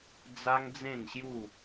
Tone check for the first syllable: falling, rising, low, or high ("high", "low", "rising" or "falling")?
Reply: high